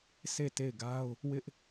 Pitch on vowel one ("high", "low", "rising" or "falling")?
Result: falling